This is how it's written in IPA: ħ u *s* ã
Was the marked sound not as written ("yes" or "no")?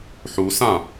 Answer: no